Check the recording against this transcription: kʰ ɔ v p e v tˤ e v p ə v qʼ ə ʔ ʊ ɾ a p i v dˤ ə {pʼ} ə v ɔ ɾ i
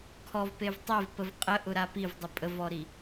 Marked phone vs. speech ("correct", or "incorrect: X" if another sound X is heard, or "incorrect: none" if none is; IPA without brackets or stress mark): correct